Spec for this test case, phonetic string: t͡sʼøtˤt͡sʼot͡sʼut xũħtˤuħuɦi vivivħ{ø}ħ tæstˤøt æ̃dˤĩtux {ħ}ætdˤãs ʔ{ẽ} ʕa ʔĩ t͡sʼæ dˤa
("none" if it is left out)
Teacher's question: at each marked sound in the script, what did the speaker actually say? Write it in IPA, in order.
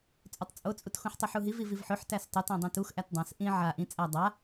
ø, ʔ, ĩ

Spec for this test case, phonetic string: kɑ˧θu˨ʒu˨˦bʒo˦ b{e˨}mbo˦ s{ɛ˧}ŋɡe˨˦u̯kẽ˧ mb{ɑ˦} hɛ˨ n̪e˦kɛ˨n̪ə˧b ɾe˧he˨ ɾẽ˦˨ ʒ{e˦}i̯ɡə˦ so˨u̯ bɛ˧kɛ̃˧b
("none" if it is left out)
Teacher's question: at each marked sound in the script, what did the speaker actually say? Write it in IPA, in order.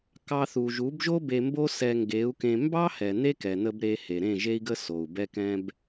e˧, ɛ˧, ɑ˦, e˦

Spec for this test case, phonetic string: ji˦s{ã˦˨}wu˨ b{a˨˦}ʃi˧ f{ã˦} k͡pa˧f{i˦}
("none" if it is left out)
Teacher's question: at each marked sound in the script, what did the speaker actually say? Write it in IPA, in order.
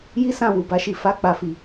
ã˦˨, a˨˦, a˦, i˨

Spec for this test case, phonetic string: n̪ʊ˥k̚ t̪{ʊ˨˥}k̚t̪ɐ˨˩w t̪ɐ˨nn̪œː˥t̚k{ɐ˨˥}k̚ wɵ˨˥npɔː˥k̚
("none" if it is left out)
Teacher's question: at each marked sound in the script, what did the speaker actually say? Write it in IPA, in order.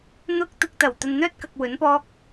ʊ˧, ɐ˨

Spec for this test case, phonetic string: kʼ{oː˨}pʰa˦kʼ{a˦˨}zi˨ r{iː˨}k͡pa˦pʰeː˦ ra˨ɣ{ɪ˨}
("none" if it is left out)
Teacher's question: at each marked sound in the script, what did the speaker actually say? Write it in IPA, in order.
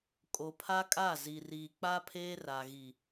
o˨, a˦˨, iː˨, i˨

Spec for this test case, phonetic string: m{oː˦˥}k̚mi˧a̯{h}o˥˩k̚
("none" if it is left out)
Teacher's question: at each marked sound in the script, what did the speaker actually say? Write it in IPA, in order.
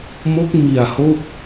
o˦˥, h

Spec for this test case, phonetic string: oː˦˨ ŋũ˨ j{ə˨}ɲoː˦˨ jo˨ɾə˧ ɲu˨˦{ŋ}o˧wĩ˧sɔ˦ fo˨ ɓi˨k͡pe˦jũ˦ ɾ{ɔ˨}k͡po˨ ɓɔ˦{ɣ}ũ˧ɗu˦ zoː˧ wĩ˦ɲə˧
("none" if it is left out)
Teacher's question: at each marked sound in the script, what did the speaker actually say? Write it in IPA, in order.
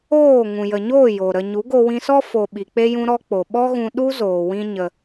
ə˨, ɡ, ɔ˦, ɣ

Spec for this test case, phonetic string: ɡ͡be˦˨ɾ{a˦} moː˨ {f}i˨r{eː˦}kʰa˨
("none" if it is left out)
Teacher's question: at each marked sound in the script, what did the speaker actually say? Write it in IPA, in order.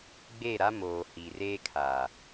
a˦, h, eː˦

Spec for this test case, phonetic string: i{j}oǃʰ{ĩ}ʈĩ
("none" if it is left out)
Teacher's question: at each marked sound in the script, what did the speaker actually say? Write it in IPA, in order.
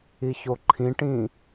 ç, ĩ

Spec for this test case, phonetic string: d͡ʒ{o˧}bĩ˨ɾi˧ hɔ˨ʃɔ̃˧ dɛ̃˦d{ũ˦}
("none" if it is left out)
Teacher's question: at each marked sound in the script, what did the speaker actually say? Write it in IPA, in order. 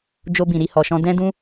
o˧, ũ˦

